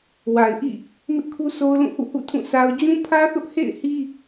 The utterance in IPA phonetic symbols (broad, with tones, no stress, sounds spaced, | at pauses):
w a˨ ɪ̯ ʔ ḭ˦˨ | m ɪ˦ ʔ kʰ u˦ s o˦ ʊ̯ l ũ˦˨ h ṵ˦˨ h ṵ˦˨ tʰ ũ˦˨ s a˦ ʊ̯ d͡ʑ ũ˦ pʰ ä˦ θ ʊ˦ ʔ h ḛ˦˨ ɪ̯ h i˦